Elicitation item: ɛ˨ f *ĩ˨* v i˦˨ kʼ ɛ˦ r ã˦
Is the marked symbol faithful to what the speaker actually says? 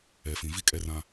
yes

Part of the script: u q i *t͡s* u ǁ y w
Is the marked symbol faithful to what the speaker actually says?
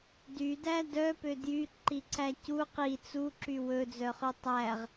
yes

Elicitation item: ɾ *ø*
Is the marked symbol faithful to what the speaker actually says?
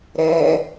no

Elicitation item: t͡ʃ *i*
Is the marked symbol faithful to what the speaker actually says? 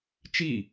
yes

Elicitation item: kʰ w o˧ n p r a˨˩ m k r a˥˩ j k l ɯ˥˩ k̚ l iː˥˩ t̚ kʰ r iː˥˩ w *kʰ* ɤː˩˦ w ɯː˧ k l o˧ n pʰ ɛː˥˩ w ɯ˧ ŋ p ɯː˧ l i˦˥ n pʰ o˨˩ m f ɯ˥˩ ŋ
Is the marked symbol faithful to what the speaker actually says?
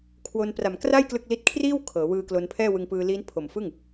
yes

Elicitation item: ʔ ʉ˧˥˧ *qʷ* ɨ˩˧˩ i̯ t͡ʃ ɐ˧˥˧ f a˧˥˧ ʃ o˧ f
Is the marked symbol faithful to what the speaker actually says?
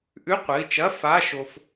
yes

